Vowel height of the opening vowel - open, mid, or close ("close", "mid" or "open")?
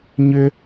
close